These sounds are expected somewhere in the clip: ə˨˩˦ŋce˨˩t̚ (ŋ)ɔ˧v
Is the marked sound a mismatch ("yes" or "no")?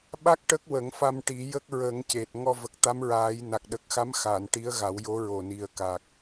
no